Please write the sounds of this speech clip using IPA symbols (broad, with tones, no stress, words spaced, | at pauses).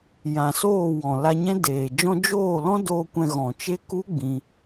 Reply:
jã˨ soː˦˨wɔ̃˨ la˧ɲɛ̃˦deː˨d͡ʒɔ̃˦ d͡ʒoː˦˨lɔ̃˦ doː˧ kʷɛ̃˧ɣɔ̃˨ t͡ʃe˦ku˦ ɡ͡bĩ˧